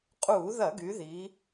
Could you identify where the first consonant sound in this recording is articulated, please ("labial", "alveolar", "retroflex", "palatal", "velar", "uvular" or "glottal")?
uvular